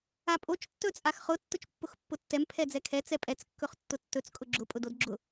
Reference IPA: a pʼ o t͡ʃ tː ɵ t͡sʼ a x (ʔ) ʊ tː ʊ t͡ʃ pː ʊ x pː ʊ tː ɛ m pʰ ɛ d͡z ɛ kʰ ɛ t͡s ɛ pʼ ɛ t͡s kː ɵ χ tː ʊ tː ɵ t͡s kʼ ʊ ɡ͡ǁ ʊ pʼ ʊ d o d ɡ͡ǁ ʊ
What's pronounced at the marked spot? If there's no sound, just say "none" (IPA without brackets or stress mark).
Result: χ